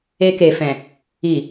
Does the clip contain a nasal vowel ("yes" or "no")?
yes